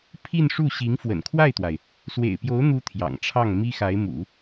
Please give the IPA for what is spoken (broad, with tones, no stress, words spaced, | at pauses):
pʰi˥˧nʂu˥˩ ɕi˧˥ŋ fwə̰˨˩nkʰwa˥˩ɪ̯t̪wa˩ɪ̯ | swḛ˨˩ɪ̯pjo˧˥ʊ̯n̪u˧˥ t̪ʰjɑ̰˨˩ŋʈ͡ʂʰɑ˥˩ŋ mi˥xa˧˥ɪ̯ mṵ˨˩˦